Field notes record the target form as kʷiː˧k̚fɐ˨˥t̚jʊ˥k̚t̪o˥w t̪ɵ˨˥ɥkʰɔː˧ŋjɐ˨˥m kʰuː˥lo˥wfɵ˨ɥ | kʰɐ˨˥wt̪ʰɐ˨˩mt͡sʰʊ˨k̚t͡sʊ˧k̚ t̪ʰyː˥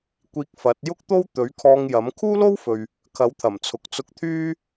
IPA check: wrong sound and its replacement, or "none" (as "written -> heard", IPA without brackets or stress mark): none